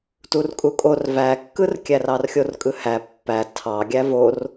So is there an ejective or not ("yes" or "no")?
yes